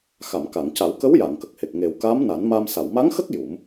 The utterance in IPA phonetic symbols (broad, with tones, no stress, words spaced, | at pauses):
xa˨˩˨mka˨˩˨ŋca˨˩˦w kə˧˥wja˨˩˨ŋkə˨˩k̚he˨˩k̚ ŋe˨˩w ka˧˥mna˨˩˦nma˧m sa˨˩˨wma˧˥ŋxə˦˥k̚ ju˨˩˦m